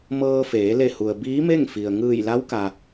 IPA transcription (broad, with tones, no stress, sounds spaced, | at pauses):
m ɤː˧ f eː˩˧ l e˧˩ h u˩ ə̯ b iː˧˥ m e˥˨ ŋ f i˩ ə̯ ŋ ɯː˧˩ j l a˧˥ w k a˩